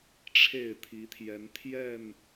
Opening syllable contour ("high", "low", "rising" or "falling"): falling